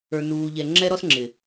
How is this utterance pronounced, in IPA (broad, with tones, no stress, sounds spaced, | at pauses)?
ə˞˨ n uː˨ ʎ ɛ˨ ŋ͡ǁ ɛ˦ ɾ ɔ˦ s ŋ͡ǁ ɪ˨